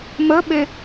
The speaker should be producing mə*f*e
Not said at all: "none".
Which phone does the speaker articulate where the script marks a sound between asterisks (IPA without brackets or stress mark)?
ɓ